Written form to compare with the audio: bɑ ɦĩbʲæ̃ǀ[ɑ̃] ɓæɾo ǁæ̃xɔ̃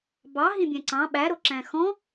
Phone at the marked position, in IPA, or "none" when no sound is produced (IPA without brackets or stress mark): ɑ̃